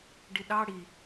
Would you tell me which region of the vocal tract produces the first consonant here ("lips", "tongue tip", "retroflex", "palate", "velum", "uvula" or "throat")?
retroflex